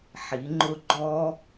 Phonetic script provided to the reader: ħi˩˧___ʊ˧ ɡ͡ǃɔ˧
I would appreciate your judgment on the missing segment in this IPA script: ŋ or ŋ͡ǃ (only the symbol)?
ŋ͡ǃ